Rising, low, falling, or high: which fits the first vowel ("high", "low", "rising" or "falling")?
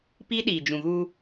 high